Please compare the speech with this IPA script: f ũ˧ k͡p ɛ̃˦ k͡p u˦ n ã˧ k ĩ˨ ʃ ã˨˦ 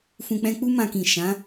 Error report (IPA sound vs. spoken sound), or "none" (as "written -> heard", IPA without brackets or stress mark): n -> m